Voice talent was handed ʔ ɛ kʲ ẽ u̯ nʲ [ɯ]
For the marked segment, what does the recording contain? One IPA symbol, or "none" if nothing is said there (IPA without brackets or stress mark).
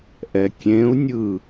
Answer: ɯ